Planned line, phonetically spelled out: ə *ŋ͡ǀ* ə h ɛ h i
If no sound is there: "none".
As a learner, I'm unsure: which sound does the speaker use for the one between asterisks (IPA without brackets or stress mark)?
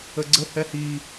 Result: ɡ͡ǀ